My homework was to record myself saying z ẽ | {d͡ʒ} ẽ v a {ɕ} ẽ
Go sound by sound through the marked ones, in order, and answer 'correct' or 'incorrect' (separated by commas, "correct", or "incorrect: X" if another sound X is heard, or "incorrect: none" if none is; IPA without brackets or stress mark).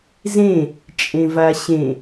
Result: incorrect: t͡ʃʼ, correct